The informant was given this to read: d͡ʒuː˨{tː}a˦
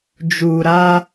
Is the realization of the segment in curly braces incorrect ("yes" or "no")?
yes